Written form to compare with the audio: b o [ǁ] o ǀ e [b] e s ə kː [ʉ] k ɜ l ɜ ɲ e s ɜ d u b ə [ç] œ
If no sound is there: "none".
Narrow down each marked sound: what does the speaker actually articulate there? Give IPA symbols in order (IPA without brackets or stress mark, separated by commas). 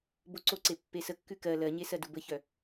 ǀ, pː, ʉ, ç